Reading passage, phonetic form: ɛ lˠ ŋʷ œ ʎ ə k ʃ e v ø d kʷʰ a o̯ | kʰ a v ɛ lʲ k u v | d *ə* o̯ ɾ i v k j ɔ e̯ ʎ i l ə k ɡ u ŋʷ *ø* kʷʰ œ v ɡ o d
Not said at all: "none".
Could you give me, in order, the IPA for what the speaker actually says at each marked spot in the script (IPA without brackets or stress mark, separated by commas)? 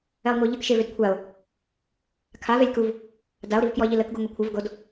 a, e